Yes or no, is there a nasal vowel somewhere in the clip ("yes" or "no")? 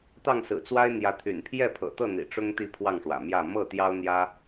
no